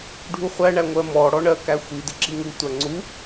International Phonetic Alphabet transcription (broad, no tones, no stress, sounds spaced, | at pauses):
ɖʱ u χʷ æ ɳ æ ŋʷ ɜ m ɔ ɽ ɔ ɳ ɜ k æ xʷ i d ɪ ǁ i ŋ u tʷ æ ŋ͡ǀ u